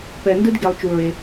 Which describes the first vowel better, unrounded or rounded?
unrounded